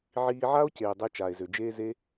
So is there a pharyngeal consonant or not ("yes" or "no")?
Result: yes